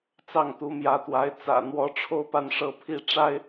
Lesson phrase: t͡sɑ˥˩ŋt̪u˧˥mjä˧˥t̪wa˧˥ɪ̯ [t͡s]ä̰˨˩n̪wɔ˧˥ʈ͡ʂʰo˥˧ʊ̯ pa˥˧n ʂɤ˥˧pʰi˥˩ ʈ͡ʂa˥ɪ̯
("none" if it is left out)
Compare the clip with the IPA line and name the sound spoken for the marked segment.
t͡s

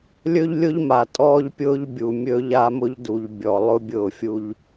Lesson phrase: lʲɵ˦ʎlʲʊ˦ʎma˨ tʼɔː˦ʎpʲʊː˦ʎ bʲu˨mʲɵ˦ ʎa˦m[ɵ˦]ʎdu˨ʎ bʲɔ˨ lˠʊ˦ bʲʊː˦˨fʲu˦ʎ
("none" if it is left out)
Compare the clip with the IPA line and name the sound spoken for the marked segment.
ʊ˦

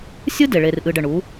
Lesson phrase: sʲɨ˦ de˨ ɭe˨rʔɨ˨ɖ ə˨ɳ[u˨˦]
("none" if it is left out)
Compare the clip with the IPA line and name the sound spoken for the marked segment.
u˨˦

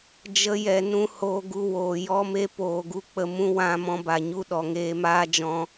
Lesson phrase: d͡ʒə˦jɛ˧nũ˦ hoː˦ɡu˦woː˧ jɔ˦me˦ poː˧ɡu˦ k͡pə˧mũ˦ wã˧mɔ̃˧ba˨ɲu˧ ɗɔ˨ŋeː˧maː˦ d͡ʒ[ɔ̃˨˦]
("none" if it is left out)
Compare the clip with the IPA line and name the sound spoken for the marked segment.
ɔ̃˧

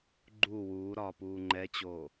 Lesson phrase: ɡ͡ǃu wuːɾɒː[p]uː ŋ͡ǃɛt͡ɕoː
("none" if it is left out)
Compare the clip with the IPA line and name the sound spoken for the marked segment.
p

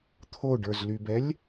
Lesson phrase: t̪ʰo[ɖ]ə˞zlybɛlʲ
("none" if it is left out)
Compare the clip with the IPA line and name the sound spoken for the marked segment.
ɖ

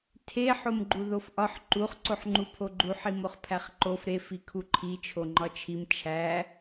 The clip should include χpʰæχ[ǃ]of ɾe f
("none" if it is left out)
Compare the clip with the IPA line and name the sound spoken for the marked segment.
ǃ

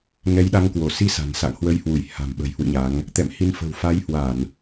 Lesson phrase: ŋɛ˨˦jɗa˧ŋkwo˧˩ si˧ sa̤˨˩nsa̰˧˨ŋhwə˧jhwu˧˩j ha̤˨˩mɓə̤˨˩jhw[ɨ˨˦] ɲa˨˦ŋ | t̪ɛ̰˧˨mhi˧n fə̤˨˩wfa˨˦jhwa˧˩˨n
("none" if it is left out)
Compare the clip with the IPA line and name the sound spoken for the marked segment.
ɨ̰˧˨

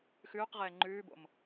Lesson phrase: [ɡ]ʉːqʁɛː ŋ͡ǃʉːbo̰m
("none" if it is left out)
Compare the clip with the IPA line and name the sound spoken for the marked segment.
x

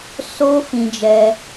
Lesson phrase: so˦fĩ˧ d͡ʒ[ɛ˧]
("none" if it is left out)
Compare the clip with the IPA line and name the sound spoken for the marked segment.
ɛ˧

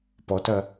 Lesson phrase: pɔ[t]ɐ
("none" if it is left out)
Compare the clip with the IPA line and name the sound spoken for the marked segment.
t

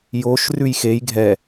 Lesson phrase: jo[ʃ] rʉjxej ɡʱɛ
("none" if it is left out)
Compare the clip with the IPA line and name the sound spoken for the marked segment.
ʃ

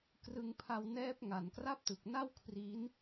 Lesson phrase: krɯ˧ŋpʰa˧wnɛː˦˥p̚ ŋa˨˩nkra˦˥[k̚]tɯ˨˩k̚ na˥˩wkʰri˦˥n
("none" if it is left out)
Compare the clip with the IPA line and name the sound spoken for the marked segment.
p̚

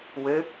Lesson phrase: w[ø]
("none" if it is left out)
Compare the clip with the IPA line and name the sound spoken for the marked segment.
ø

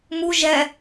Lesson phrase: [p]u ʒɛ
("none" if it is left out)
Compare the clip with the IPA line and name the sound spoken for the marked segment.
m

